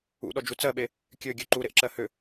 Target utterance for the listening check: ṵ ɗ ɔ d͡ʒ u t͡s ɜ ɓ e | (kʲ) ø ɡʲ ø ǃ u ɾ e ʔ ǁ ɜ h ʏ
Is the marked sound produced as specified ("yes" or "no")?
yes